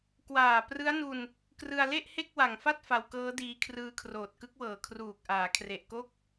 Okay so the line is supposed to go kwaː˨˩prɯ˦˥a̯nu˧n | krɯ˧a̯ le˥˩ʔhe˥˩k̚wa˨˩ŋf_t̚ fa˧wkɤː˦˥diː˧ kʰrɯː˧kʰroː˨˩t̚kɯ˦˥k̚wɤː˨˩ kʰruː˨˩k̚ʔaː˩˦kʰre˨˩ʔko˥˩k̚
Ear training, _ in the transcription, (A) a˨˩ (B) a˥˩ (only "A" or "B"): B